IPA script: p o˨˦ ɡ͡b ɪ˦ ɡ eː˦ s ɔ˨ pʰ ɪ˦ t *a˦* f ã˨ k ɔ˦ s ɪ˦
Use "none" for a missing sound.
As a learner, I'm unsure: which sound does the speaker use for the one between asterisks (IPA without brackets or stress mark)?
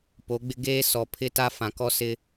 a˦